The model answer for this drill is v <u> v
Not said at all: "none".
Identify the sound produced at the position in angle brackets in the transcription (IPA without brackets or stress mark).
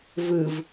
ɯ